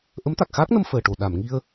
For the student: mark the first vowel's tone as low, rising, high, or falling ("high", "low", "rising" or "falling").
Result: rising